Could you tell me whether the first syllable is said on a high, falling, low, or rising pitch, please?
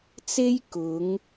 high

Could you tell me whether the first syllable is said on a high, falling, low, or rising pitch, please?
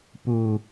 low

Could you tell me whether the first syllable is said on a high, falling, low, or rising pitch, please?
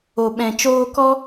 low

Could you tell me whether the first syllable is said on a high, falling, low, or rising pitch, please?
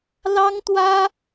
high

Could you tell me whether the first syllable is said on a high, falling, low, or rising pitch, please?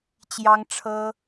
high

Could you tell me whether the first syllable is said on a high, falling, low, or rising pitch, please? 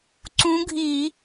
rising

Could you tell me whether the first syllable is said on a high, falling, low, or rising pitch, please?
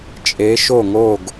rising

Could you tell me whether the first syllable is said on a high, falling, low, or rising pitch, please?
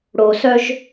low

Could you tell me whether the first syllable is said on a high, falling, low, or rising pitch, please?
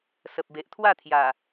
low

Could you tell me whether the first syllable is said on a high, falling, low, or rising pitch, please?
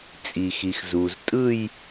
low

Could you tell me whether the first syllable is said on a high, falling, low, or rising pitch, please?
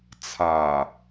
low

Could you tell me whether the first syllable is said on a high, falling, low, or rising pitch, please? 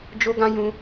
high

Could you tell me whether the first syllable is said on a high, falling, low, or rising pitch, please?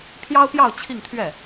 high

